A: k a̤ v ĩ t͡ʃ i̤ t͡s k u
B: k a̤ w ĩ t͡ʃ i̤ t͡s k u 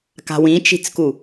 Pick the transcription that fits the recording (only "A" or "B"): B